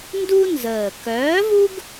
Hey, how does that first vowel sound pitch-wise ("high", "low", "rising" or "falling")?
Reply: high